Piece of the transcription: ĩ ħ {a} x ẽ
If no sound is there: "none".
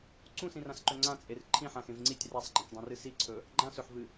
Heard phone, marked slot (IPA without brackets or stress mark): ã